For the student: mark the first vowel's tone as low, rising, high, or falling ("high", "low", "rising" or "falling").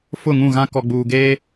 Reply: falling